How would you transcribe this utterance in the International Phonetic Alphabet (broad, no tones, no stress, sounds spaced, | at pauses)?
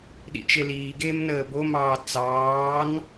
ɗ ḭ t͡ʃ e l iː ɡ eː m n əː b o m ɑː t͡s ɑː n